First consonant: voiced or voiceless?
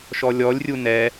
voiceless